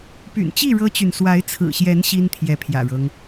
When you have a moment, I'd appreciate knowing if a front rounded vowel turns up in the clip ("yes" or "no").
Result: yes